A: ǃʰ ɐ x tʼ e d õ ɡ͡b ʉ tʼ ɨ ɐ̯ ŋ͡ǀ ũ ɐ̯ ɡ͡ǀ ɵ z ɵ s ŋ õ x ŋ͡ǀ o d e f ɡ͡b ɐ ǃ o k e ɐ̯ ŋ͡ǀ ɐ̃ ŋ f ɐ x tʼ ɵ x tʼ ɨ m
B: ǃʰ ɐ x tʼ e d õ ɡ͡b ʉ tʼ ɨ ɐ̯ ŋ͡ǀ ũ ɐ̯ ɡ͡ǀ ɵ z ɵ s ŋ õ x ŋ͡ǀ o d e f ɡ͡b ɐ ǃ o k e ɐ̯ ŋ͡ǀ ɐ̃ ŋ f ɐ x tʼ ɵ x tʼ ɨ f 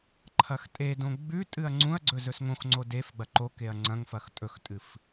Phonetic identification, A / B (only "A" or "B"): B